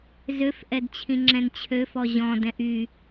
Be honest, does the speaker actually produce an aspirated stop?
yes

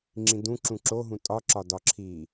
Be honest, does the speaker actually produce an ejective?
yes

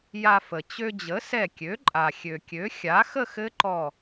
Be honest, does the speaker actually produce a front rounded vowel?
yes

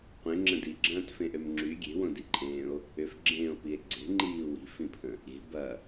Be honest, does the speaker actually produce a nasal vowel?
yes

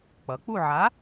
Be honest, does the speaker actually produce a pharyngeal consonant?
yes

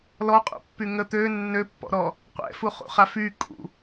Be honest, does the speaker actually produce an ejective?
yes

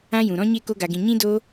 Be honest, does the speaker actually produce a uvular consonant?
no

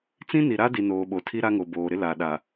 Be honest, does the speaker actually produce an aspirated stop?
yes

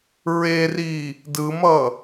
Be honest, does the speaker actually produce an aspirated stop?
no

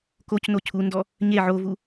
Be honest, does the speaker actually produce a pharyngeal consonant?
yes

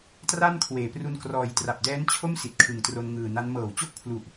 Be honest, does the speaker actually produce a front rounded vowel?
no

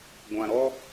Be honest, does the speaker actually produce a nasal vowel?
yes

